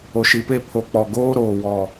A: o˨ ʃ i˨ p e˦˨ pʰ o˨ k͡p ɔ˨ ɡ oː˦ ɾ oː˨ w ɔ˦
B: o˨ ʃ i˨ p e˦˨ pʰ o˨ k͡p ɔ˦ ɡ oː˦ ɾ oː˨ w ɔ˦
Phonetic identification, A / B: A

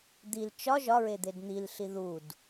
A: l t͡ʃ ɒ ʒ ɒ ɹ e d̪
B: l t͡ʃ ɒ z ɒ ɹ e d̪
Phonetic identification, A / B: A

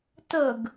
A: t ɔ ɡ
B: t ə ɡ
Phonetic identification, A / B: B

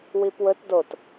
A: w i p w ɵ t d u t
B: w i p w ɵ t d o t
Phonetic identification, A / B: B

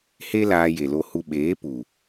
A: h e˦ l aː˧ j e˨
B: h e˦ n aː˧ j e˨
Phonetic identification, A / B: A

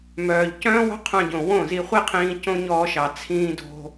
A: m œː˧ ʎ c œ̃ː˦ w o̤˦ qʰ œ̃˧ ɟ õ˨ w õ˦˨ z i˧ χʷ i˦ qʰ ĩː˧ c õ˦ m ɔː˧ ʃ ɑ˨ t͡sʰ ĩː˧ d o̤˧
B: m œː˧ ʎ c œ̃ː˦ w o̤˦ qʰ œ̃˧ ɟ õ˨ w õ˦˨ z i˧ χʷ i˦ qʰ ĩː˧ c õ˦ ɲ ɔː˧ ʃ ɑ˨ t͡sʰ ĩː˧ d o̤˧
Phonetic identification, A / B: B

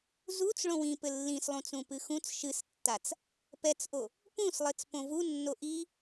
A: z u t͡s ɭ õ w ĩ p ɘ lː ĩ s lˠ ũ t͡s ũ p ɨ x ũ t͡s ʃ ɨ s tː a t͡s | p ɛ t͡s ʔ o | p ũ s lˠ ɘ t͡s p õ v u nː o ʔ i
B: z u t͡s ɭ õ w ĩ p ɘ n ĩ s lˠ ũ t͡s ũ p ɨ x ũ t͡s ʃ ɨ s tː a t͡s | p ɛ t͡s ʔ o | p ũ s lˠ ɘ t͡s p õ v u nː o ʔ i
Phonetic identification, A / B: A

